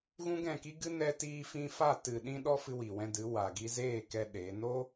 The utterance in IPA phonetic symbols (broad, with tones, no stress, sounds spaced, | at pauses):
ɣ ũ˦ ɡ ɛ̃˦˨ k i˦ ɡ ɨ˦ n ɛ˧ t iː˧ f ĩ˧ f a˦˨ t ɨ˨ ɗ ĩ˧ ɗ ɔ˧ f ɨ˧ w i˨ w ɛ̃˧ d ɨ˨˦ w a˨ ɡ i˧ z eː˦˨ k ɛ˦ ɗ eː˨˦ n o˦